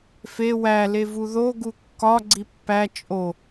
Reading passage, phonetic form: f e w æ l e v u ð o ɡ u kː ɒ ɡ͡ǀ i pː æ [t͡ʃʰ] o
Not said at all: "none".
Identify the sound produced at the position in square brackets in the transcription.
t͡ʃʼ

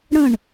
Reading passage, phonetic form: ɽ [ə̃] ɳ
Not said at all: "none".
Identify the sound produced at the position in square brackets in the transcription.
ə̃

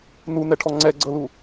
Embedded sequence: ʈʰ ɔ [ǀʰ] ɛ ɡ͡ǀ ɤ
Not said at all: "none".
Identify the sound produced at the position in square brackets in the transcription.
ŋ͡ǀ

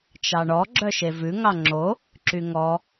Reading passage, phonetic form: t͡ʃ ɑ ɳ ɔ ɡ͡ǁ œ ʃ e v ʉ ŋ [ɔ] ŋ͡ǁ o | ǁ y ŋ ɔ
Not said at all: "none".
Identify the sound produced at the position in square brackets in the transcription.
ɑ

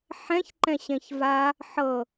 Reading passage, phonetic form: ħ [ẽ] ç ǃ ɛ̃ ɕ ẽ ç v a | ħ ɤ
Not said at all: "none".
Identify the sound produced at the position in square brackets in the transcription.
ɛ̃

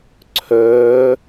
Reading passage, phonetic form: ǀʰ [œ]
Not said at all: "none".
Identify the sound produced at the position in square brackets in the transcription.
œː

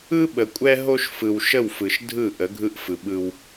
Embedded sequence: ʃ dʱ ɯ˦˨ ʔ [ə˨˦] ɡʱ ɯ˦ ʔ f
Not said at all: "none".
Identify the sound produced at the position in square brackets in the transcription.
ə˨˦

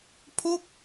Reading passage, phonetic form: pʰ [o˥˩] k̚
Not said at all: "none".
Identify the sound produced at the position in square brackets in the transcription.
o˥˩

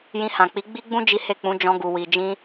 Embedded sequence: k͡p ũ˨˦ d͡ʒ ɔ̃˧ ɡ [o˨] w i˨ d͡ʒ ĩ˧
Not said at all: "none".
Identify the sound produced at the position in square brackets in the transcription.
u˨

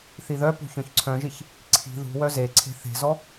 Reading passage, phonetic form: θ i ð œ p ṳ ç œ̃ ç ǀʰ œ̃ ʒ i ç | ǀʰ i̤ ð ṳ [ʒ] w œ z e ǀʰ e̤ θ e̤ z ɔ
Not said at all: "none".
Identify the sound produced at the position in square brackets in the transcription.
none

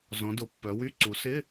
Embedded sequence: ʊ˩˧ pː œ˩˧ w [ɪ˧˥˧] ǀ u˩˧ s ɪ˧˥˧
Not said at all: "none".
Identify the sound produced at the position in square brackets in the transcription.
y˧˥˧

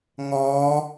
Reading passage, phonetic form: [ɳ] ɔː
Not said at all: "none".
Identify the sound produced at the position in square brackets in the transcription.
ŋ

